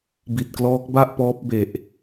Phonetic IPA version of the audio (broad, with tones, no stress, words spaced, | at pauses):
bi˨˩t̚klɔː˦˥k̚ ba˥˩ʔpɔː˦˥p̚ be˨˩ʔ